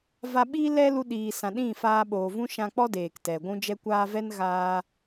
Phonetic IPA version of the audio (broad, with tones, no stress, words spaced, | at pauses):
va˧ɓiː˦ lɛ˦lu˧ ɗiː˨sã˨ ɗĩ˦˨faː˧ ɓoː˨ vũ˦ ʃã˧k͡pɔ˦ deː˨ktɛ˨ ɡʷũ˦d͡ʒɛ˦kʷaː˦ vɛ˦nɣaː˧